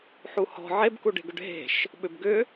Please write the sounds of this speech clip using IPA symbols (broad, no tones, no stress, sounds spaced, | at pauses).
ħ u h ɔ̤ ʕ e b k u ɖ e̤ ɡ ʏ ɖ ɦ e̤ ʃ | ɓ ʏ b ɡ ʏ